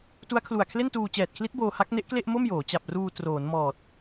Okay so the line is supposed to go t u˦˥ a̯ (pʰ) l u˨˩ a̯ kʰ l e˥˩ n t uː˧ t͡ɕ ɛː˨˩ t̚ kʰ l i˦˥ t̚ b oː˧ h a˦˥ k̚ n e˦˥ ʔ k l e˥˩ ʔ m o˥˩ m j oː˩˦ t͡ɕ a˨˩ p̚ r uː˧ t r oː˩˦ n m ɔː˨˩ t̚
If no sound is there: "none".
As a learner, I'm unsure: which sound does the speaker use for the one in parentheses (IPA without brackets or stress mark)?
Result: kʰ